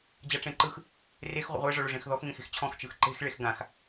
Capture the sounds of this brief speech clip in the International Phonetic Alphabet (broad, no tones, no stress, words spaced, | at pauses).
d͡ʑaʈ͡ʂẽǃɯx | rex ʁʷə̰ʁʷe ʐɔɭoʐẽxðɔx ŋẽxe̤xt͡ɕʰɔ̃x t͡ʃɯxǃe̤x ɭexɡãx